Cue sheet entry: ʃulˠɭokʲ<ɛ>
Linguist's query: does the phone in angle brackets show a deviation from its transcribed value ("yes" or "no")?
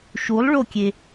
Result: yes